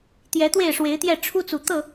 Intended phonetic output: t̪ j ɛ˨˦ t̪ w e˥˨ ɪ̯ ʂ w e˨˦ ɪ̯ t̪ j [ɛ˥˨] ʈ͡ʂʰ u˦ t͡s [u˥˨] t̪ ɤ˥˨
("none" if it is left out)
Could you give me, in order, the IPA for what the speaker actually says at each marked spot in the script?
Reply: ɛ˥˨, u˨˩

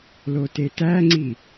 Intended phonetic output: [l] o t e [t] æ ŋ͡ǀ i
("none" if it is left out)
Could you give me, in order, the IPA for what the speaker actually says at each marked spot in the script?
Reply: l, t

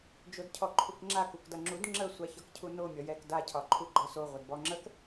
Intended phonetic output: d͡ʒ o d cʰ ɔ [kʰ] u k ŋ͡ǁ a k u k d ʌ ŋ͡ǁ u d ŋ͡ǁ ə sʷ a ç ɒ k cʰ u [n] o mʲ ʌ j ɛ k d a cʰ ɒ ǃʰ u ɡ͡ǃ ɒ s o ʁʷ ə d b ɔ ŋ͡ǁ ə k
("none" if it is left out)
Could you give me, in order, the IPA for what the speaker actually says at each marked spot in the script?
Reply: ǃʰ, n

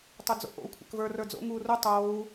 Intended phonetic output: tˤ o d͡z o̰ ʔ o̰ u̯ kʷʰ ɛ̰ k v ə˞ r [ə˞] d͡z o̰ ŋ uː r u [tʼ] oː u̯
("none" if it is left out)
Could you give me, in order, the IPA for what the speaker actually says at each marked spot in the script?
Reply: ə˞, tˤ

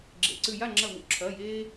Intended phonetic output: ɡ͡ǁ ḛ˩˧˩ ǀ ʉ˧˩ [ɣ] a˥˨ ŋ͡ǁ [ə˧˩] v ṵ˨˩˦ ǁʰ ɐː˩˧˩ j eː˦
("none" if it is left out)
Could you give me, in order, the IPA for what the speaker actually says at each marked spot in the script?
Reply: j, ɐ˧˩

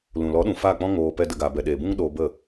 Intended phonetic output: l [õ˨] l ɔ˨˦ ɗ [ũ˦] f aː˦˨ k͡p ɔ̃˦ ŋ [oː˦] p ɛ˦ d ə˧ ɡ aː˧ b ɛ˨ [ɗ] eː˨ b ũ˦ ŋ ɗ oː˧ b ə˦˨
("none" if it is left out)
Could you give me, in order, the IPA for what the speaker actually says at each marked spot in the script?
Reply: ũ˨, ũ˨, oː˧, ɗ

